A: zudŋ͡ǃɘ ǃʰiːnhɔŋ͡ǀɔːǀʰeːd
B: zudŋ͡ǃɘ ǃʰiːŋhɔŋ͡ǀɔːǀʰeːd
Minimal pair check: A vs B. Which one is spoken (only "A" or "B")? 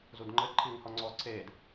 B